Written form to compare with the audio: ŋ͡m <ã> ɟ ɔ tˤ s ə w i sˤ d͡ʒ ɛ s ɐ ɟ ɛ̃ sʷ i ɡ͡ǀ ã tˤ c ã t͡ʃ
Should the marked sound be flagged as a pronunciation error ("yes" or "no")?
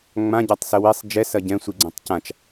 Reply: no